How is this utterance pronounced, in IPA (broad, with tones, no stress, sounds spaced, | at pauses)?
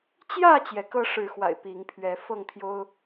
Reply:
t͡ɕ j ä˥˨ t͡ɕ j ɛ˨˦ k ɤ˦ ʂ ɻ̩˨˦ x w a̰˨˩ ɪ̯ p i˨˦ ŋ pʰ ɥ ɛ˨˦ f ɤ˥˨ ŋ t̪ʰ j o˦ ʊ̯